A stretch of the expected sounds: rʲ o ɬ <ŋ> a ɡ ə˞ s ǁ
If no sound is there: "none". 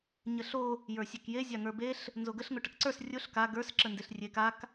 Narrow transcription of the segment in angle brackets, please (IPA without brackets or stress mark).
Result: k